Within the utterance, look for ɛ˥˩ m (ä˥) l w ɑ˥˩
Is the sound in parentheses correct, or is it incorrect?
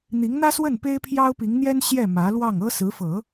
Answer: incorrect